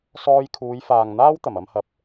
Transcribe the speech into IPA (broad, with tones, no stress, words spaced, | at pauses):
sɔː˧jkʰuː˨˧jfaː˨ŋ n̪aː˥wt̪ɐ˨˩mɐ˧mhɐ˨˥p̚